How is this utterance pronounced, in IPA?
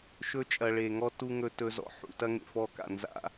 ʃ ɵ˦ t͡ʃʼ ɐ˨ ɭ e˨ ŋ ɔ˦ t u˦ ŋ ɵ˦ t ɵ˦ z ɔ̰˦ ħ ṵ˨ t ɐ˦ ŋ ḛ˨ f ɔ˦˨ k a̰˨ n z a̰˦

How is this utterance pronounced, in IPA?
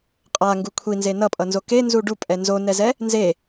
qʼ a ŋ ɡ u kʷʰ i n z e n ʌ pʼ ʌ n z o k e n z u ɖ u pʼ ɛ n z o n ɛ z ɛ | n z e

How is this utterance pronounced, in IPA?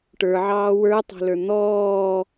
ʈ ə˞ ʕ ɑː w ə˞ tˤ ɑ̤ l ə˞ n̪ ɔː

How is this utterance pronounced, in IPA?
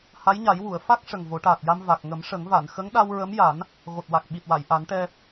h a˧˥ j ɲ a˨˩˦ j w u˨˩˨ ə̯ f a˦˥ k̚ ʂ ə˨˩ ŋ v o˨˩˦ ʈ aː˨˩ t̚ j a˧ m v a˨˩ k̚ ŋ ə˨˩˦ m ʂ ə˨˩˦ ŋ v a˨˩˨ n x ə˧˥ ŋ ɗ a˧ w ɹ ə˧˥ m j a˨˩˦ n | ɣ o˨˩ t̚ w a˨˩ k̚ ɓ i˨˩ t̚ w a˨˩˨ j ʔ a˨˩˦ n ʈ ɛ˧

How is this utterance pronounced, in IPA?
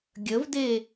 ɡʲ ə v d e

